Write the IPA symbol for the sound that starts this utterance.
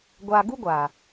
ɡʷ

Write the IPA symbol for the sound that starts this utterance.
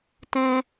t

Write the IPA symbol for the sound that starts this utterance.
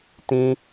t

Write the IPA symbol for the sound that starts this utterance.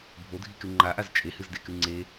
bʱ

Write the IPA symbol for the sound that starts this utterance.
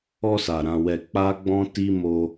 ɔ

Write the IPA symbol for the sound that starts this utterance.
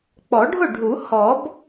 k͡p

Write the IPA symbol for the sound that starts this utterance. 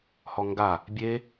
h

